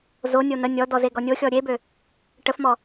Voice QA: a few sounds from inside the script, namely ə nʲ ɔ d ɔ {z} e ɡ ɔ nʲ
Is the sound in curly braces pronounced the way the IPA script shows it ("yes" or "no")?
yes